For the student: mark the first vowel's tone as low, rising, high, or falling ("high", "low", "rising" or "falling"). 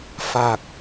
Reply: low